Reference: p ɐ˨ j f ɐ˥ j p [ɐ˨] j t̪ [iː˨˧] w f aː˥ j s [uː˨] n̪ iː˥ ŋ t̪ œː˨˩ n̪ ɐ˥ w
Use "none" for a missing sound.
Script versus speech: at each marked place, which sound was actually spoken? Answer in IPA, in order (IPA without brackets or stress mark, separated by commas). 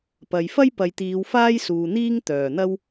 ɐ˨, iː˨˧, uː˨